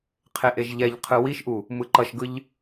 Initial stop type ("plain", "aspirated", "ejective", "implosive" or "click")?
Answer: aspirated